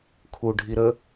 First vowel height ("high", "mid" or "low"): high